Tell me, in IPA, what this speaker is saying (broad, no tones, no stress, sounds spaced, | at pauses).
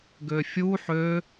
ɡ ø fʲ u ħ ø